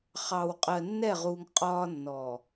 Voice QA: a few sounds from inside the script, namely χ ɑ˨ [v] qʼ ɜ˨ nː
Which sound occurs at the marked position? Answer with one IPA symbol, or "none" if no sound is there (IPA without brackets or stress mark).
w